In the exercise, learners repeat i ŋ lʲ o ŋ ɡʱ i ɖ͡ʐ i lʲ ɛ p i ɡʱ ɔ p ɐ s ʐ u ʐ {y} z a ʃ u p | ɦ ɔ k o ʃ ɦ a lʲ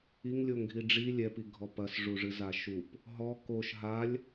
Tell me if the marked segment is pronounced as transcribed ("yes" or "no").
no